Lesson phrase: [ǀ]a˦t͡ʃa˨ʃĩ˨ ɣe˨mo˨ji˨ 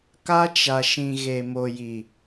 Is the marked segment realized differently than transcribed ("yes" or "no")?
yes